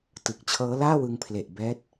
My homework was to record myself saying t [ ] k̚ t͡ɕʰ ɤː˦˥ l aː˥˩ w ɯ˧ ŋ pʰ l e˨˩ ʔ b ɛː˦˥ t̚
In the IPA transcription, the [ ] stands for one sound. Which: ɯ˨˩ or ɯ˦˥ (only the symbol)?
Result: ɯ˨˩